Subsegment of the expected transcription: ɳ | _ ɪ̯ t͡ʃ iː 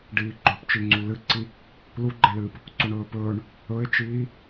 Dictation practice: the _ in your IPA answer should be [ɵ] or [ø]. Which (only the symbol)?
ɵ